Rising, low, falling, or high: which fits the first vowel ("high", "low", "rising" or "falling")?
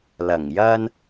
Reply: low